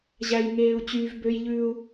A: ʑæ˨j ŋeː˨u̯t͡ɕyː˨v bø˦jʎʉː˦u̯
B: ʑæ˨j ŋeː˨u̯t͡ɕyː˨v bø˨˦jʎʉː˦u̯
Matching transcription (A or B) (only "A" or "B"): A